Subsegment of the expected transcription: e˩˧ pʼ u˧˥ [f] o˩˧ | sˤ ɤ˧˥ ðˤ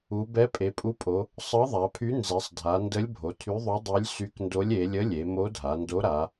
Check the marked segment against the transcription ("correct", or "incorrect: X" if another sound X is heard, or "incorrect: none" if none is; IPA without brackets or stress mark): incorrect: pʼ